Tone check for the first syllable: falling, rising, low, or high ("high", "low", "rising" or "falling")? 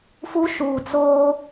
high